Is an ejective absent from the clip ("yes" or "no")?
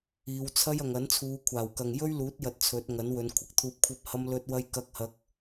yes